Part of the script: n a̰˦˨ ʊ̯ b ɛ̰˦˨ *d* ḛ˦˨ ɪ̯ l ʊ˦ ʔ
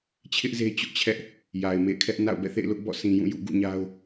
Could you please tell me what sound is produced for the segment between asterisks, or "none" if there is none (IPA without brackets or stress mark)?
θ